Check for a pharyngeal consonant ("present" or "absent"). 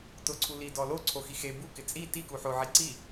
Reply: present